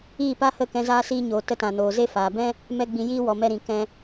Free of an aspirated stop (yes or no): yes